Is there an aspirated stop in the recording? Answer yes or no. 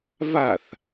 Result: no